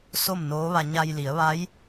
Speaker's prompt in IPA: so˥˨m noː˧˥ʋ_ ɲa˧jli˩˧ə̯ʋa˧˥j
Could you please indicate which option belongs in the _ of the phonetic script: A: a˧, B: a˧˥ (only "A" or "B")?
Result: A